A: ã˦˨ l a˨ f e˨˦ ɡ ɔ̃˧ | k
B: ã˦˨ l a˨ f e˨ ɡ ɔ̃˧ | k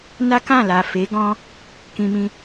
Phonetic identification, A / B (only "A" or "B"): A